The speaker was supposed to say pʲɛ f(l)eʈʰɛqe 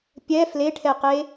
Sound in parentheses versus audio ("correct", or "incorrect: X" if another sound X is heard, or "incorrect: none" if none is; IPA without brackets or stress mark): correct